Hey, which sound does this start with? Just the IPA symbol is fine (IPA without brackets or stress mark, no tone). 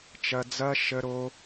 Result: t͡ʃ